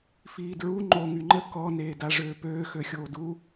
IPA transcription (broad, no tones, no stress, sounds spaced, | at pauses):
f iː d ɹ u ŋ͡ǃ o ŋ y ŋ͡ǃ ə k ɔ n eː d a ʐ øː p øː x ø xʲ oː d u